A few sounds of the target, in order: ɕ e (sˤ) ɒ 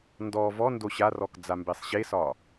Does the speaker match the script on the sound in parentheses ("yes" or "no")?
no